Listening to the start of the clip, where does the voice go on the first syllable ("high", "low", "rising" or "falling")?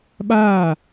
falling